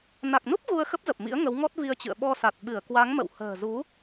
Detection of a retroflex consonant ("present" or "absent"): absent